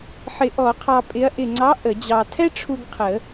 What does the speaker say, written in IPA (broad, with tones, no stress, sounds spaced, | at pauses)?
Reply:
ħ ɪ˨˩˦ ʔ ɔ˨˩˦ qʰ ɑ˧ pʼ ɪ˨˥ ɐ̯ ʔ ɪ˨˩ ŋ͡ǀ ɑ˨˥ ʔ ə˨˩˦ d͡ʑ ɑ˧ tʰ ɛ˥ ʈ͡ʂʰ u˧ ɡ qʰ ə˨˩˦